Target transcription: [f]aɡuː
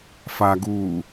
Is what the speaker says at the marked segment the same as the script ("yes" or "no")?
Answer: yes